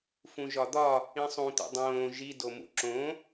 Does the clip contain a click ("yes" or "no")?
yes